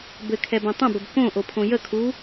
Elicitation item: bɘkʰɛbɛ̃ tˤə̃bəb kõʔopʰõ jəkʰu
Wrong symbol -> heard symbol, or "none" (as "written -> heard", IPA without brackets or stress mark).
none